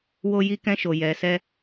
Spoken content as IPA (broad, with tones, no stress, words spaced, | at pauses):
wo˦ji˦kɛ̃˦ʃo˧ jɛ˧sɛ˦